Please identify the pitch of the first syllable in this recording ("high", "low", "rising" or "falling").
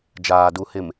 low